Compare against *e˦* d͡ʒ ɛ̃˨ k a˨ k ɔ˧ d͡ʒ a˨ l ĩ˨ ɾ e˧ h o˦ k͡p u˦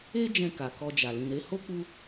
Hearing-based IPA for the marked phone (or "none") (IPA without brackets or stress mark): e˧